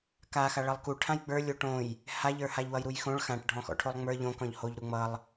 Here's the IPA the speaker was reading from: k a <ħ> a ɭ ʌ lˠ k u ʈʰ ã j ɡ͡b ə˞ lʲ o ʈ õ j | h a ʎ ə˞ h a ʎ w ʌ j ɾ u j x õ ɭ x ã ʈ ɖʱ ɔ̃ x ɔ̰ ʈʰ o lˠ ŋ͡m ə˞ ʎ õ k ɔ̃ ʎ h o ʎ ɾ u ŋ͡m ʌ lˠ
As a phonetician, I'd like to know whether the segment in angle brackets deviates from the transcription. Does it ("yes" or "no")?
yes